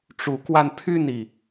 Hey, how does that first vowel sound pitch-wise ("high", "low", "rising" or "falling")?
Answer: rising